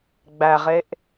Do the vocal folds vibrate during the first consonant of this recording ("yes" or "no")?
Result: yes